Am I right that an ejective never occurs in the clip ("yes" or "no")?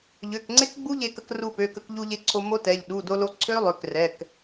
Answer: yes